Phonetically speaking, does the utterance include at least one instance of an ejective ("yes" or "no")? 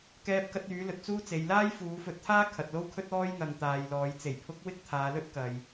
no